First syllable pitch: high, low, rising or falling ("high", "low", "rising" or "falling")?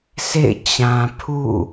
falling